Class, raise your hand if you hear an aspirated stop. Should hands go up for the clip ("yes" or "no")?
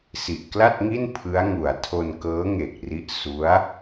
yes